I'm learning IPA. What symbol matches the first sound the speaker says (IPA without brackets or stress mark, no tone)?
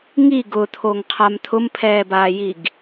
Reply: ŋ